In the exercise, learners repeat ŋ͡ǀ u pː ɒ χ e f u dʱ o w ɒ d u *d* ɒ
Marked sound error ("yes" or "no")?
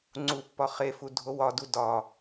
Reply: no